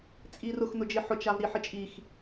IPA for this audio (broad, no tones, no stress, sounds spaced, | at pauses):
t͡sʼ i r ʊ x n ʊ d͡ʒ ɪ ħ ʊ t͡ʃ a v ɾ i ħ ɪ t͡ʃʼ i x